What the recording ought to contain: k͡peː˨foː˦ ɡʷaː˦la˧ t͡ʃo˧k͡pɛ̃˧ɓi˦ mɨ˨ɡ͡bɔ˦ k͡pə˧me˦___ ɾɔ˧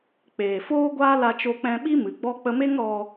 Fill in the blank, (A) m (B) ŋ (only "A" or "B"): B